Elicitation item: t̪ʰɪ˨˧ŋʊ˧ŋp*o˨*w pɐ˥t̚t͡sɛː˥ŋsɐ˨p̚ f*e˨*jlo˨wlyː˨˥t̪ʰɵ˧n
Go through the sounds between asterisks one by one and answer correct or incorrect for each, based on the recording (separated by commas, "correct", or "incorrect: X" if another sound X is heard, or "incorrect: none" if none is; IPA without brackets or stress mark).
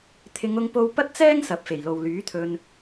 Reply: incorrect: o˧, incorrect: e˨˩